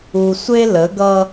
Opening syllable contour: low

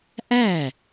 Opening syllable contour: falling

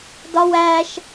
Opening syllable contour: high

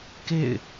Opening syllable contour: falling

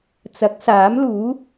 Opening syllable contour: rising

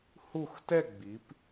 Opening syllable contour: falling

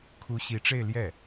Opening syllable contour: rising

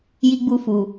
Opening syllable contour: high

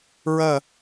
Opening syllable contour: falling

